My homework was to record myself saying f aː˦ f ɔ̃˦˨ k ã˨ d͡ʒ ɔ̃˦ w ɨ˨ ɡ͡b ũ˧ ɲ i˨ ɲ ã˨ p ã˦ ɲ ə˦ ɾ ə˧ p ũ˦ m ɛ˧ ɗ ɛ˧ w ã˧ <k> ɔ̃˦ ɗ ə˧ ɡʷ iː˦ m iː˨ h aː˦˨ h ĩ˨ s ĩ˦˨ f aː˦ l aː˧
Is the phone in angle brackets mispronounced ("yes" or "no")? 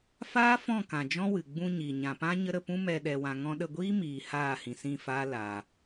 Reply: yes